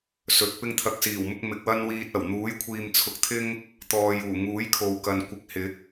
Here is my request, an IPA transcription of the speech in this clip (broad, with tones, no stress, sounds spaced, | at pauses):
s ɵ˨˥ t̚ p ɪ˥ ŋ t̪ʰ ɐ˧ k̚ s iː˨˩ w m ʊ˧ k̚ m ɪ˨ k̚ w ɐ˥ n w iː˧ t̚ ɐ˨˩ w n̪ uː˨˥ j kʷʰ iː˨ m t͡sʰ ʊ˨˥ k̚ t̪ʰ ɪ˥ ŋ | t̪ ɔː˨ j uː˨˩ ŋ uː˨˥ j kʰ o˨ w k ɐ˨ n kʷ ɪ˨˥ k̚ h ɪ˨˥ k̚